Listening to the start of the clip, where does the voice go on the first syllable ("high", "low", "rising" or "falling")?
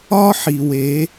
high